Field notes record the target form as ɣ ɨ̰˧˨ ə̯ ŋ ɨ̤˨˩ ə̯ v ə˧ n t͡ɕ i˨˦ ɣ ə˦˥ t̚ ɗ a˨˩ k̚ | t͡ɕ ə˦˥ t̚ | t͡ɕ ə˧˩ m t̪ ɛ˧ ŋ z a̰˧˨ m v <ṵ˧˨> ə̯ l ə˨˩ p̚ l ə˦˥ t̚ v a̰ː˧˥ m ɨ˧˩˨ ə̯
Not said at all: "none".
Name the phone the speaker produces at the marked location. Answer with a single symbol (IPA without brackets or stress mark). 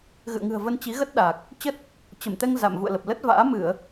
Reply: ṵ˧˨